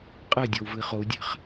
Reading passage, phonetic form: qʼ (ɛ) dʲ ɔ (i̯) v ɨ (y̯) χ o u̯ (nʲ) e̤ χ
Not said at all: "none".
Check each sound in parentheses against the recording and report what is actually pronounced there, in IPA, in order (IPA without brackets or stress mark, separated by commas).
ɛ, u̯, i̯, dʲ